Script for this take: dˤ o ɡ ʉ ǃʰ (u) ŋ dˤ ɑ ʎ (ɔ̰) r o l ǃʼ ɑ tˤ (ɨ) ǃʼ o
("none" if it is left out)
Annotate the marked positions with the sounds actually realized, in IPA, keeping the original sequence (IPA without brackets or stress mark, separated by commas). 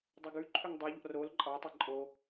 ʉ, ɔ̰, ɛ